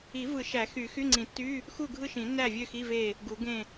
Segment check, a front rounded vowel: present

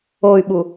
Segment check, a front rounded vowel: present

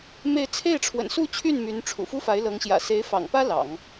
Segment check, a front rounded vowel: present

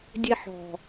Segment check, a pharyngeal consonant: present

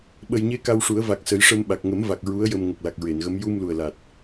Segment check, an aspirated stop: absent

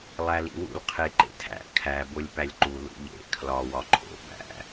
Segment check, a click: present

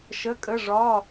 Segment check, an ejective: present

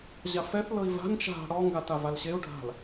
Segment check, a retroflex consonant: present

